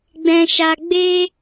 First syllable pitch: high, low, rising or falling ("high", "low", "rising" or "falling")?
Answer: high